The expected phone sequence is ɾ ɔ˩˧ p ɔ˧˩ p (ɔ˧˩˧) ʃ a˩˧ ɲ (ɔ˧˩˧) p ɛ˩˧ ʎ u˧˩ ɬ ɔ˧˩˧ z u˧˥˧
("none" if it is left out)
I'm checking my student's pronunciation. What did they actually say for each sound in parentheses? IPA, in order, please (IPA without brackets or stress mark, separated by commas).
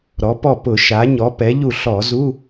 ʊ˧˩˧, ɔ˩˧